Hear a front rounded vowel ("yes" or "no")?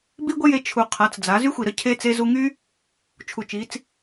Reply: yes